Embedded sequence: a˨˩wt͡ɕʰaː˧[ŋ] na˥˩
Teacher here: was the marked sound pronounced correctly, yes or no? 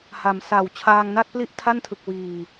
yes